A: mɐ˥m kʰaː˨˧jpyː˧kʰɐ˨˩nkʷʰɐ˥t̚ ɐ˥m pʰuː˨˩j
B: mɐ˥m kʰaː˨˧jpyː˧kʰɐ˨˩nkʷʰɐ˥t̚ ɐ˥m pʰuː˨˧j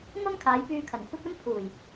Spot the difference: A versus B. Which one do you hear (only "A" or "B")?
A